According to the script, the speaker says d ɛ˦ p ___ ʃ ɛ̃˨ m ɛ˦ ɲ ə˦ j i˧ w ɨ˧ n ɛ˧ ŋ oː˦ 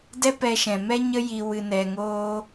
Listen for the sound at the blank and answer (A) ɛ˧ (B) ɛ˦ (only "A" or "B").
A